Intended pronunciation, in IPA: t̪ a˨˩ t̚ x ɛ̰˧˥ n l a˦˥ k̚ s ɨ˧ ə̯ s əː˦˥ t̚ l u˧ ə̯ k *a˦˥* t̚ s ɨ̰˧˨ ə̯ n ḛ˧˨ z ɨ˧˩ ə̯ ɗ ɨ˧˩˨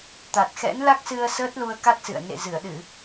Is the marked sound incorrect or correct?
correct